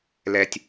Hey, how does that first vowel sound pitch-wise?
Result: low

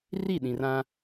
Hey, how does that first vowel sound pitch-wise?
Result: falling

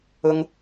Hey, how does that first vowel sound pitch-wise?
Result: high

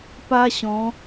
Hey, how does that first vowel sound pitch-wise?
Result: high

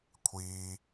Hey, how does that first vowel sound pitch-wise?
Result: high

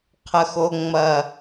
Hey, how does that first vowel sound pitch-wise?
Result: low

